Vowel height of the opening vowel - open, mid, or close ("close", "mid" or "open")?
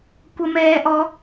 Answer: mid